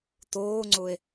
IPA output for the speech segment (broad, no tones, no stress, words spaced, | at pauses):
toːŋ͡ǀʊe̯